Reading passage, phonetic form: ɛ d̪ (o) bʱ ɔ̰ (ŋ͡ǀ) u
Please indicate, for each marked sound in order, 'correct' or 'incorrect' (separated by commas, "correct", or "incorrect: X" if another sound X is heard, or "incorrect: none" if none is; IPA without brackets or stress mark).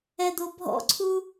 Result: correct, incorrect: ǀʰ